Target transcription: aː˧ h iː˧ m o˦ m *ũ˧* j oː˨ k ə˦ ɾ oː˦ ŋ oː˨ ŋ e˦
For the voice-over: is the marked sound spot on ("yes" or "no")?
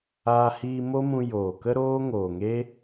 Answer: yes